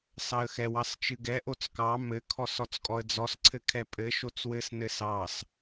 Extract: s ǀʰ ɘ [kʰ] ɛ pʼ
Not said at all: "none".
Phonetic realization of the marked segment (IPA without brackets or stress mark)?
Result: kʰ